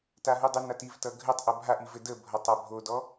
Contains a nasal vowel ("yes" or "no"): no